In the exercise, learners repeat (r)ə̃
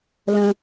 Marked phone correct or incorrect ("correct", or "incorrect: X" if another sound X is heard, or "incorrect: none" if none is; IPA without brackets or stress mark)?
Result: incorrect: l